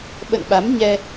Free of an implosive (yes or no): no